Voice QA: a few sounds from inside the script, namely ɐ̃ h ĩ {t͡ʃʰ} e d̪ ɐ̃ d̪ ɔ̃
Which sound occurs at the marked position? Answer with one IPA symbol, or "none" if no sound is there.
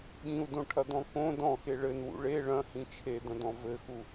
t͡ʃʰ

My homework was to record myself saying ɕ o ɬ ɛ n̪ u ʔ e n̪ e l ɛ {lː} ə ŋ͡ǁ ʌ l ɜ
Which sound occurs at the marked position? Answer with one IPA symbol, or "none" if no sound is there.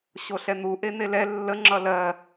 lː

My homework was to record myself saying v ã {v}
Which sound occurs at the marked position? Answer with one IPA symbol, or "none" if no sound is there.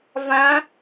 none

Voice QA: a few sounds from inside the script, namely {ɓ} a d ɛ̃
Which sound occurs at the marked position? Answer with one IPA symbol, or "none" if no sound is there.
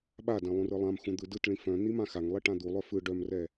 ɓ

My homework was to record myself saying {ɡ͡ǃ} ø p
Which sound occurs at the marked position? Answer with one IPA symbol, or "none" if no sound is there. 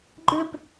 ɡ͡ǃ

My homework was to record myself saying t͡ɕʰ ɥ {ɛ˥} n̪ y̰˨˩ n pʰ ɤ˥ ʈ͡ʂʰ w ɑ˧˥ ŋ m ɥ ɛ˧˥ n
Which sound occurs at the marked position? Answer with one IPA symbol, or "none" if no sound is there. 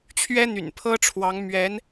ɛ˥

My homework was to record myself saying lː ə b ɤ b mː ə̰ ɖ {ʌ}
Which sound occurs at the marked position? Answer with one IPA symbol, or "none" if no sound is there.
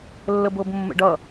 ʌ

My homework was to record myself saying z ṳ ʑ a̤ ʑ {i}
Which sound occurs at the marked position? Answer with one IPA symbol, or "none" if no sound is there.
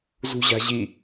i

